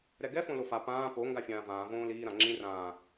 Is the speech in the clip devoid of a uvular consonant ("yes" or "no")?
yes